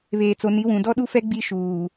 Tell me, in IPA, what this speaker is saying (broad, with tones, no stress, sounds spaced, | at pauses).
β eː˨ t͡s o˨ n i˨˦ w ũ˨ d ɔ˦ ɗ u˦ f ɛ˦ ɡ͡b i˦ ʃ uː˨